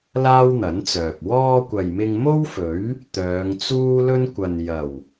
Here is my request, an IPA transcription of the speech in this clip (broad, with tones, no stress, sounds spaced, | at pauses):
l aː˥ w n̪ ɐ˨˥ n t͡s œː˨ p̚ w ɔː˧ kʷ ɐ˨ j m ɪ˧ ŋ m o˥ w f ɵ˨˥ ɥ | t̪ œː˨˧ ŋ t͡s uː˥ l ɵ˥ n kʷ ɐ˨ n j ɐ˨˩ w